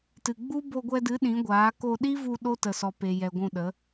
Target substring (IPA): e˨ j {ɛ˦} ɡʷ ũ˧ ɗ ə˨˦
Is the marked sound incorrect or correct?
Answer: incorrect